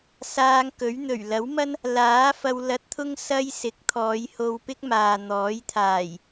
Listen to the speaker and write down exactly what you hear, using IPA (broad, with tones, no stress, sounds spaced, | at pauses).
s aː˧ ŋ k ɵ˨˥ ɥ n̪ ɵ˨˩ ɥ l ɐ˨˥ w m ɐ˥ n | l aː˨˥ f ɐ˧ w l ɐ˧ t̚ t̪ʰ ʊ˥ ŋ s ɐ˥ j s ɪ˨˥ k̚ t̪ʰ ɔː˨˧ j h o˧ w p ɪ˥ k̚ m aː˨ n̪ ɔː˨˥ j t̪ʰ aː˨˩ j